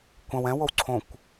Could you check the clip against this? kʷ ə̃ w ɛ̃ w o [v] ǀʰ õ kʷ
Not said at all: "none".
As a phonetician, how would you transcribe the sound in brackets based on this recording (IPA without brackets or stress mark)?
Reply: w